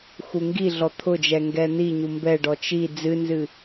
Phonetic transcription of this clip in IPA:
x u ŋ ɡ i ɮ ɔ t̪ʰ ʊ d͡ʒ ɛ ŋ ɡ ɛ n̪ i ɲ u m b ɛ ɖ ɔ t͡ʃ i d͡z ɨ n z ɨ

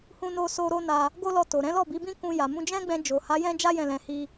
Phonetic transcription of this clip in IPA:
h ũ˧ n o˧ s o˧ ɾ o˦ n a˧ | ɡ o˦ l ɔ˧ t o˨ ɾ ɛ̃˨˦ l ɔ˦˨ b i˨˦ b ĩ˦ k ũ˧ j a˨ m ũ˧ d͡ʒ ɛ̃˦ ɡ͡b ɛ̃˧ d͡ʒ o˨ h a˨˦ j ɛ̃˦ d͡ʒ a˦ j ɛ̃˦˨ l ɛ̃˧ h i˦

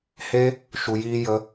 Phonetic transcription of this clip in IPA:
h e˦ | ʃ u˧ j iː˦ j ə˦

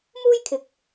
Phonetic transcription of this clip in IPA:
m uː˥ j kʰ ɪ˨ k̚

